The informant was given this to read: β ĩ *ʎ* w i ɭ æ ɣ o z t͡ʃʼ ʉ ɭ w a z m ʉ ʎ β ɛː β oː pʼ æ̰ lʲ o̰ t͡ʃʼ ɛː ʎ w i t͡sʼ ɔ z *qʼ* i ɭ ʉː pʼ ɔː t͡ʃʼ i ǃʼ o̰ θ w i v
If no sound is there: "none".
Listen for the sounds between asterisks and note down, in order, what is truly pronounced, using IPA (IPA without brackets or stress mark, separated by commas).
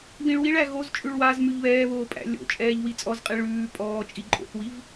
ɭ, qʼ